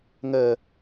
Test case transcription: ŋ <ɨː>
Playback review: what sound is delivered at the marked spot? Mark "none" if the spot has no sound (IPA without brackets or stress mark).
əː